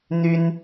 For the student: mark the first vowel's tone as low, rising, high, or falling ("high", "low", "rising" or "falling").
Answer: high